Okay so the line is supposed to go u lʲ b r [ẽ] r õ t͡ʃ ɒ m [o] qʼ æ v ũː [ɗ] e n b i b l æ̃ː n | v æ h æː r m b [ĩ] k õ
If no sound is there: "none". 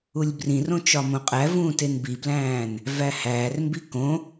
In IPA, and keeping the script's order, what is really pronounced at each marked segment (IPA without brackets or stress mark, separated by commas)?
ĩ, õ, t, i